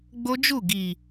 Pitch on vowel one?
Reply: high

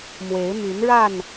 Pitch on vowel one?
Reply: rising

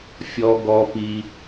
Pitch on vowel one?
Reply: high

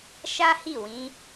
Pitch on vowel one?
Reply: high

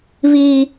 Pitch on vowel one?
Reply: high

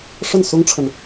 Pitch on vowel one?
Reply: falling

